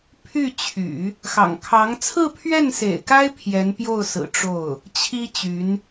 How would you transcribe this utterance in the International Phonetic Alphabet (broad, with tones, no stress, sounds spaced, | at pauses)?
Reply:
pʰ y˥˩ t͡ɕʰ y̰˨˩˦ | x ɑ̰˨˩ ŋ kʰ ɑ˧˥ ŋ t͡sʰ ɹ̩˥˧ pʰ ɥ ɛ˥˩ n s ḛ˨˩ ɪ̯ k a˥ ɪ̯ pʰ j ɛ˧˥ n p j o˥˩ ʊ̯ s ɹ̩˨˩ ʈ͡ʂ o˥˩ ʊ̯ | t͡ɕʰ i˥ t͡ɕ y˧˥ n